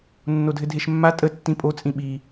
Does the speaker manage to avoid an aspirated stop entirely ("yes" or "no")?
yes